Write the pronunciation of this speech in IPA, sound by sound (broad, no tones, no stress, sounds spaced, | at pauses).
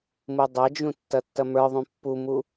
m u dˤ ɐ d͡ʒ ũ tː ɐ tː ɐ m ə˞ ðˤ ũ pː u m u